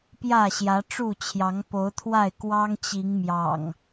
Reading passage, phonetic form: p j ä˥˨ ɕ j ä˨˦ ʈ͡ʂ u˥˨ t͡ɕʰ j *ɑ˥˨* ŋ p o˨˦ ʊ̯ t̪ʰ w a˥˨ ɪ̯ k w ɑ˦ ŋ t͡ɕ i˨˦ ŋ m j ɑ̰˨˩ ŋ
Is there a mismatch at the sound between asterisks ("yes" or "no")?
yes